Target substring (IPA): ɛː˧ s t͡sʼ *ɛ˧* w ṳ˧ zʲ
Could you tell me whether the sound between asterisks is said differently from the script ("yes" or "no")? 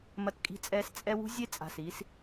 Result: no